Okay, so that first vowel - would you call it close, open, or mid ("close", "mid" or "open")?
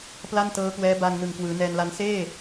open